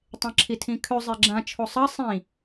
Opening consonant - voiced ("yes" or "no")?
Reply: no